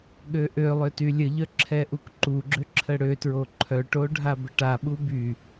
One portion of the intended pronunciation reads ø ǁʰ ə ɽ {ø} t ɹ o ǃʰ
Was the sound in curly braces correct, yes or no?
yes